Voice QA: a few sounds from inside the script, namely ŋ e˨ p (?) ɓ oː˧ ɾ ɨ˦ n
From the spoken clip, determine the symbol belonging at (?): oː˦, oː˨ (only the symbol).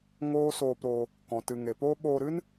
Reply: oː˦